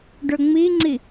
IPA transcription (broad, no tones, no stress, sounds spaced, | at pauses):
ɖ ɵ ŋ͡m i ŋ͡ǀ i